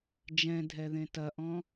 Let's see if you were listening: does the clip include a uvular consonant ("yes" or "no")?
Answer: no